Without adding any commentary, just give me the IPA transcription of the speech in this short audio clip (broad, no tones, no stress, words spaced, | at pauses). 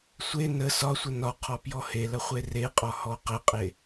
sʷe nə sɒsʷə nɒqʰɔ pjɔhelɐ χʷereqʼɒ hɔqəqʼe